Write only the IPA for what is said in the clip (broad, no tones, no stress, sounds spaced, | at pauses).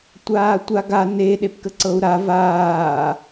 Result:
tʷ aː tʷ a ɡ a n e ɗ e p k ə ǀ ɤ u̯ ɾ a v aː